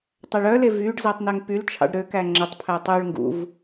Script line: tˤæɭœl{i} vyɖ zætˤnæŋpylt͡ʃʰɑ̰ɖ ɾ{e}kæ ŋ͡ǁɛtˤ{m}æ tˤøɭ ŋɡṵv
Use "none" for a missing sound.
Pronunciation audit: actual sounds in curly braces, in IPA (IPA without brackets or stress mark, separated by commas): e, ø, pʰ